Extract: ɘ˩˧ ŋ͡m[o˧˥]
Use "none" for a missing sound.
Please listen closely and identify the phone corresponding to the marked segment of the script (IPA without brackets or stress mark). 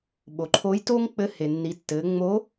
o˧˥